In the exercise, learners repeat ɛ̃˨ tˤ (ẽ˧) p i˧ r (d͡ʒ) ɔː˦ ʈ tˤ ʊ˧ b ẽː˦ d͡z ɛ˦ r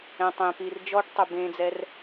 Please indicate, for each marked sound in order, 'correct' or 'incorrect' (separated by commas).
correct, correct